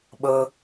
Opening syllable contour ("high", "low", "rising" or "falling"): low